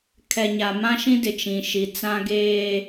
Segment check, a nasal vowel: present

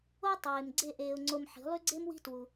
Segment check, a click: present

